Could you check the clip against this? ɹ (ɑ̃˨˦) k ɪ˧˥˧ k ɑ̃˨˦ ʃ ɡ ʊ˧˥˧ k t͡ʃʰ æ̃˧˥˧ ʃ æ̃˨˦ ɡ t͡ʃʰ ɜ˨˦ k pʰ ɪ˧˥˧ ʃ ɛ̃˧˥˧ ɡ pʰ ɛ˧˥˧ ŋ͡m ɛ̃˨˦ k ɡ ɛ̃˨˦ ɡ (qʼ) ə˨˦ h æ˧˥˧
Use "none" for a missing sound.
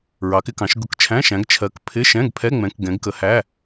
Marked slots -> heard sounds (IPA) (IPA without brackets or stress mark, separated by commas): ɑ˨˦, k